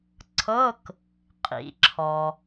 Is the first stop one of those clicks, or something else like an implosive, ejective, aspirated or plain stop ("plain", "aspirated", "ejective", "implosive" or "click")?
click